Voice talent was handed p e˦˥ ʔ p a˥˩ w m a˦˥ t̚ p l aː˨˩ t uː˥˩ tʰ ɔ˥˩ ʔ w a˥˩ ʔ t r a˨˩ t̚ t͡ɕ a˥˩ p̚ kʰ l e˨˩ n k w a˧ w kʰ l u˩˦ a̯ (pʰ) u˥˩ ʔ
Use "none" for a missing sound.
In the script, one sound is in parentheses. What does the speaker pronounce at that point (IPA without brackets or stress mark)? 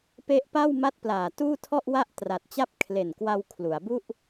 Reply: b